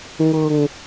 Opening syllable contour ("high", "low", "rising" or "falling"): low